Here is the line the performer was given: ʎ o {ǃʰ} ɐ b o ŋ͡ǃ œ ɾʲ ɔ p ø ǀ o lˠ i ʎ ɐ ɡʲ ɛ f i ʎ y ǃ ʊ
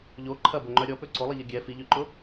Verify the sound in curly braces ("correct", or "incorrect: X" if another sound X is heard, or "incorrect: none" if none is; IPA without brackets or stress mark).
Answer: correct